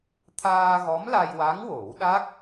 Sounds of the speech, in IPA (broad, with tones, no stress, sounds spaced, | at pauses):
t̪ʰ aː˧ ɣ ɔ˧˥ m l a˧ j w a˧˥ ŋ w o˨˩˦ w ɗ a˦˥ k̚